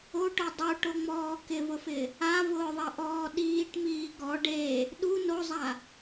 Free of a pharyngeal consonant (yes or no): yes